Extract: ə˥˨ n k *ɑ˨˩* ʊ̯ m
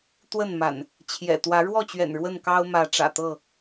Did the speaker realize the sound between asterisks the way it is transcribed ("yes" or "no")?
no